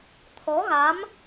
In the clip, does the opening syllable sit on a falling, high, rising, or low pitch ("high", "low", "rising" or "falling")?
rising